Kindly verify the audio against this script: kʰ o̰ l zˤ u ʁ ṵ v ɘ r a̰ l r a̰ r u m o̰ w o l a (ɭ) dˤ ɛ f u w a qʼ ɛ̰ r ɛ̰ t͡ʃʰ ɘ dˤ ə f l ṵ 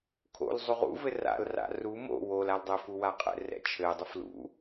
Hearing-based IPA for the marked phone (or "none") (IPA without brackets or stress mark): l